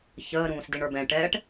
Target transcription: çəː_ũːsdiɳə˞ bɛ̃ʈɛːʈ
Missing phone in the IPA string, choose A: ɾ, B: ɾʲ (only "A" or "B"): A